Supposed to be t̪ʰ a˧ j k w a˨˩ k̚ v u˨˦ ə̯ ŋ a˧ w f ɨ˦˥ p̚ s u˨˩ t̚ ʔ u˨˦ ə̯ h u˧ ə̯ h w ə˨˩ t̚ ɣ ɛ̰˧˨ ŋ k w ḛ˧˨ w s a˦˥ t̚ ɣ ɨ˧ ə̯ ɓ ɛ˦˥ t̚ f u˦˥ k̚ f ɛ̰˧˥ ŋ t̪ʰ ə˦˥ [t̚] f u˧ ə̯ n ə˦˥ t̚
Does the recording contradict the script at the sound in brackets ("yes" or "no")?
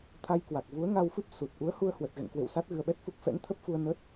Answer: yes